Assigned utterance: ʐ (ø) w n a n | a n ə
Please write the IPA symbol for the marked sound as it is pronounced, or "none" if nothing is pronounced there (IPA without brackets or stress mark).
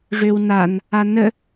ø